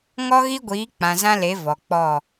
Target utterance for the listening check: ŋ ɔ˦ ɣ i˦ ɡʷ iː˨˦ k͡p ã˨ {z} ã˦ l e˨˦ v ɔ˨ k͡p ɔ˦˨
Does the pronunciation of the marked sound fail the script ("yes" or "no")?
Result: no